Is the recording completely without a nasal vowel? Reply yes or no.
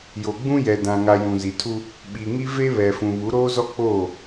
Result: no